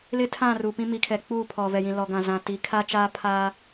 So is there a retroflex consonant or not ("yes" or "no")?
no